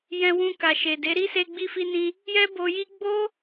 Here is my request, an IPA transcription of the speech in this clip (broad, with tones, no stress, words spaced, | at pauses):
jɛ̃˧wũ˧ ka˨ʃe˨de˨˦ ɾi˦se˧ ɡ͡bi˧fi˧nĩ˧ | jɛ˦bo˧ji˦ ɡ͡bo˦